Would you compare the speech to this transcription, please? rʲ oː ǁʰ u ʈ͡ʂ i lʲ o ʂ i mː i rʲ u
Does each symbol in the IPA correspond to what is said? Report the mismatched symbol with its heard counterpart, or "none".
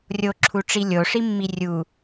oː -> o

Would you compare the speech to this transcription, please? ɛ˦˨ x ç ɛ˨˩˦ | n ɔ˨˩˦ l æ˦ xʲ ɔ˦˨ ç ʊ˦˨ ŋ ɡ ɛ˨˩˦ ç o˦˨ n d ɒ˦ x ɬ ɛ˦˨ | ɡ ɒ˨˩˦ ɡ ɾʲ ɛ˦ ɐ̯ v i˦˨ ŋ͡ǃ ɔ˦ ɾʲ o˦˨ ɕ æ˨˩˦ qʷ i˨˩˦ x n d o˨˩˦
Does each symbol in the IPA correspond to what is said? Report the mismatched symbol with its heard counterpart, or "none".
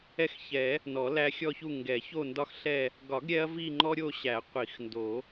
ʊ˦˨ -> u˦˨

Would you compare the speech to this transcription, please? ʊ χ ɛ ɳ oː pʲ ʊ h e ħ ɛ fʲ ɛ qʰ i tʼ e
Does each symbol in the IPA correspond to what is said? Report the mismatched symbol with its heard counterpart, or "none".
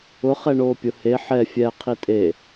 none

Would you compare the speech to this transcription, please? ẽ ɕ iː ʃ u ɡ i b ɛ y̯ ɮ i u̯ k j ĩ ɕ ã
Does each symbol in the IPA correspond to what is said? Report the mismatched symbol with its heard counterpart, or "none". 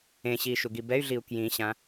none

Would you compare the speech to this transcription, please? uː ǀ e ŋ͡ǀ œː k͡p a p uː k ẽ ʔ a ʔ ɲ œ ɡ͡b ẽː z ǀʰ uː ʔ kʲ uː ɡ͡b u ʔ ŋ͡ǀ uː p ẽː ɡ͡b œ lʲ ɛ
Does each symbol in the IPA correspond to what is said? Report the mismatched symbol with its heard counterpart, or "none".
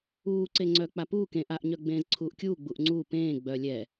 none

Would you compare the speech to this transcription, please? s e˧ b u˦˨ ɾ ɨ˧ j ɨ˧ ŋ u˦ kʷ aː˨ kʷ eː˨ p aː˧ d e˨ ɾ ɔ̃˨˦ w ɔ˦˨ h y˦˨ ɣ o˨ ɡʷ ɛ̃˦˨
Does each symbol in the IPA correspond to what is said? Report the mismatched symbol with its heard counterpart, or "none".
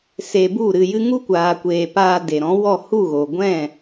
y˦˨ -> u˦˨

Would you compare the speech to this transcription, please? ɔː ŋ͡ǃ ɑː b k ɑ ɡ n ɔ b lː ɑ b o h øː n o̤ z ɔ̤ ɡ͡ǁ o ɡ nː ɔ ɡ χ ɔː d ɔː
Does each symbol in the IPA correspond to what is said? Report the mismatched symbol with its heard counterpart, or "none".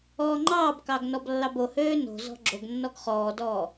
none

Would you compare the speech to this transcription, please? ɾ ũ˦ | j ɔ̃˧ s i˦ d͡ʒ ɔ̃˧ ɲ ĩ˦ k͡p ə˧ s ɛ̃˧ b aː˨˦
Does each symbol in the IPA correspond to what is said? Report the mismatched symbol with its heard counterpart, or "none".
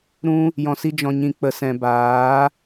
ĩ˦ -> ĩ˧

